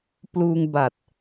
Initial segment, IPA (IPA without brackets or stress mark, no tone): p